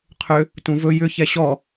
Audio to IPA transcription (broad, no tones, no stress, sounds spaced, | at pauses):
qʰ ʏ | t ũ v ɵ j ʏ ç ɛ ɕ ɔ